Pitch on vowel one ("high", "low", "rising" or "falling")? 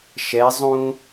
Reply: rising